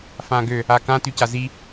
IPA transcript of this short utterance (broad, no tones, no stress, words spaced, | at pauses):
fãːɡø | akã tycazi